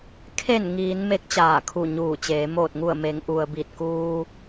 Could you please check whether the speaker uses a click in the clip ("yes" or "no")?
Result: no